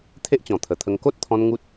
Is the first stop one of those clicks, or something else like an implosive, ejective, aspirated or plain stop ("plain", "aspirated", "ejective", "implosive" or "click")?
aspirated